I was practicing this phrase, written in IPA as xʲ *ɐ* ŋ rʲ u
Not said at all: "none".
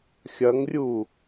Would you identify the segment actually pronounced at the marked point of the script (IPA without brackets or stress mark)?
ɐ